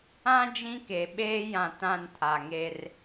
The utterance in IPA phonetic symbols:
ã˦ d͡ʒ ĩ˦ k e˨ ɓ eː˦ j ã˨ t ã˦˨ n tʰ a˨ ŋ e˦ r

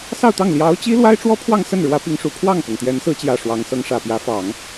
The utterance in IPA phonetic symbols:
s ɑ˥˧ ʊ̯ t̪ ɑ˥˩ ŋ l j ɑ˧˥ ʊ̯ t͡ɕ i˥ l w a˥ ɪ̯ ʈ͡ʂ w ɔ˥ pʰ w ɑ˥˧ ŋ s ə˥˩ n ɻ w ä˧˥ p i˧˥ ŋ ʂ u˨˩ pʰ w ɑ˥˩ ŋ k ɤ˩ ŋ t̪ j ɛ˧˥ n s ɹ̩˧˥ t͡ɕ j ä˨˩ ʂ w ɑ˧˥ ŋ s ɤ˧˥ ŋ ʂ ä˨˩ p j ä˧˥ f ɑ˨˩˦ ŋ

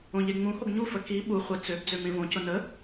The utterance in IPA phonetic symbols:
õ ʎ e ŋ͡m ũ h o ɡ ɲ u f ə k i ɓ u χʷ ə t͡s ø b d͡z ø m ẽ v õ c ʊ n ə

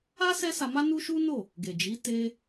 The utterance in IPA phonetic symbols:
a˦ s ɛ˦ s a˧ m a˦ n u˦ ʃ u˦ n o˦˨ | ɡ e˨ d͡ʒ i˨˦ t e˦

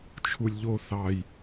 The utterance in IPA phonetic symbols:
t͡ʃʰ u lʲ ʎ o θ ɑ j

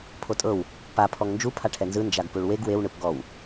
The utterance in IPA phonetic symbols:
pʰ o tʼ ɤ w | p a pʰ ɔ ŋ n d͡ʒ u pʰ a ʈʰ ɛ n z ɯ n d͡ʒ a ɡ p u ɭ w e ɡ w e w ɳ ɯ p ɡ ɔ w

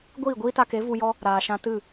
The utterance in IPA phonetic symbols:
ɡʷ iː˦˨ ɡʷ iː˦ t a˧ k e˨˦ v u˧ j ɔ˦ | ɾ aː˨ ʃ ã˧ t ɨ˦˨

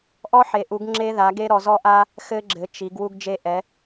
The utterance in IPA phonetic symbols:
ʔ ɔ˥ ħ e˨˥ ʔ u˨˥ ɡ ŋ͡ǁ e˥ ð a˨˥ ɡ e˥ ɾ ɔ˨˥ z ɔ˥ ʔ a˥ | x ɘ˥ ɡ͡ǁ ɘ˨˥ t͡ʃ i˨˥ ɡ w u˥ ɡ d͡ʒ e˥ ʔ ɛ˨˥

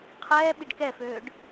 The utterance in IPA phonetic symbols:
qʰ ɛː ɓ i ɖ k ɛ f øː ɖ

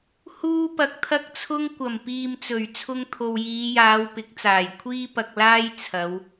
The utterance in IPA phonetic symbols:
h uː˥ p ɐ˧ k̚ t̪ʰ ɐ˥ k̚ t͡sʰ ʊ˥ ŋ kʷ ɐ˨˩ m p iː˨ m t͡s ɵ˨˩ ɥ t͡sʰ ʊ˧ ŋ t̪ʰ o˨ w j iː˨˧ j aː˨˧ w p ɪ˨˥ k̚ t͡s aː˨˩ j kʷʰ iː˥ p ɐ˨ k̚ l aː˥ j t͡sʰ ɐ˨˧ w

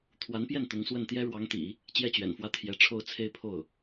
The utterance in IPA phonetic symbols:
t̪ʰ w a˧˥ n p j ɛ˥˩ n t̪ ʊ˧˥ ŋ s w ə˥˩ n t̪ j ɛ˥ ɻ w ɑ˧˥ ŋ t̪ ḭ˨˩˦ | t͡ɕ j ɛ˥ t͡ɕ ɥ ɛ̰˨˩ n f w ä˥˩ t̪ʰ j ɛ˧˥ ʈ͡ʂʰ o˥˧ ʊ̯ t͡sʰ e˥˧ ɪ̯ pʰ o˥˩ ʊ̯

